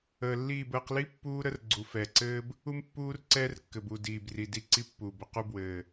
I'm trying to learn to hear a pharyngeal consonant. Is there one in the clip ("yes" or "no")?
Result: no